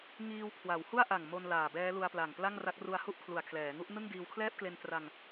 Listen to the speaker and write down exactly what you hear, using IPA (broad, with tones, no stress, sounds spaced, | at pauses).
ŋ iː˧ w kʰ w a˩˦ w h u˥˩ a̯ ʔ a˨˩ ŋ m o˧ n l aː˨˩ b ɛː˦˥ l u˧ a̯ p l a˨˩ ŋ p l a˥˩ ŋ r a˦˥ k̚ r u˧ a̯ h u˥˩ ʔ kʰ l u˨˩ a̯ kʰ l ɛː˩˦ ŋ u˥˩ ʔ n ɯ˥˩ ŋ d iː˧ w kʰ l ɛː˥˩ p̚ k l e˧ n t r a˧ ŋ